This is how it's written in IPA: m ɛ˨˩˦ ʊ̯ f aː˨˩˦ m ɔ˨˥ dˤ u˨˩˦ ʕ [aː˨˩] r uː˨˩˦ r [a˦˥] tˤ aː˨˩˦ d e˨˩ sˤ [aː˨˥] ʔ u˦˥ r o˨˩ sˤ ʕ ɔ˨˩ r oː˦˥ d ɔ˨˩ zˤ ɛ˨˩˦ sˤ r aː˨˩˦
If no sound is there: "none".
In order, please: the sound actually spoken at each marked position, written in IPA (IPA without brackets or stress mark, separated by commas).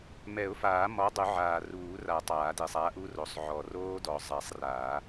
aː˨˩, a˨˩˦, aː˨˥